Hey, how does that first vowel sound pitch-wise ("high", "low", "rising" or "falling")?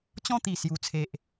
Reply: falling